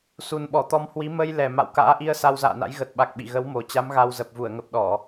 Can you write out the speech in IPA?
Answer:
s u˨˩ n ɓ ɔ˧˩ t̪ ɔ˨˦ m h w i˨˦ m ə˧ j l ɛ˨˩ m a̰˧˨ w k a̰ː˧˥ ʔ i˧ ə̯ s a˧ w z a̰ː˧˨ n a̰˧˥ j ɣ ə˨˩ t̚ ɓ a˨˩ k̚ ɓ ḭ˧˨ ɣ ə˨˦ w m o˨˩ t͡ɕ a˨˦ m ɣ a˧ w z ə˨˩ p̚ v u˧˩ ə̯ ŋ ə˨˩ p̚ ɗ ɔ˧˩˨

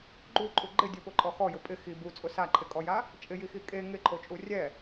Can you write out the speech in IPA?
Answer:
ɡ͡ǃ u ǃʼ u ɡ͡ǃ ɪ dʲ o p o ǃʼ ɔ x ɔ j ʊ pʼ ɪ x i b u t͡sʼ ʊ s a ǃʰ ɪ kʼ ɔ j a | t͡ʃʼ ɪ j i x i kʼ e ŋ ɪ ǃʰ o t͡ʃʼ u rʲ ɛ

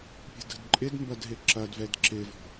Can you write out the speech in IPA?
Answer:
pʲ ə̤ d ə̤ d ǃʼ ɪ d m b ɐ d ɦ ɪ ǁ ɐ d v ɛ d ǁ ɪ v ɔ̤

